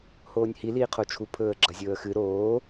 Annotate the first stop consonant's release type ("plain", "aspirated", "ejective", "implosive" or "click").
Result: aspirated